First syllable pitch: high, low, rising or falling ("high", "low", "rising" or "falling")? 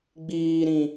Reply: low